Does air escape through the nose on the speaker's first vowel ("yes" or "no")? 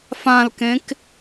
yes